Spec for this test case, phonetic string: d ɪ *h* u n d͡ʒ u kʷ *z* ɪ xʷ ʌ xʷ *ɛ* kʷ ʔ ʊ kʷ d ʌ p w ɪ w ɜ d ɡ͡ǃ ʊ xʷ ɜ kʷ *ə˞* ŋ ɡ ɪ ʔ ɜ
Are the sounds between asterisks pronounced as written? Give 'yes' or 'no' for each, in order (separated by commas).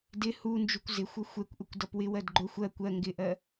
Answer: yes, yes, yes, no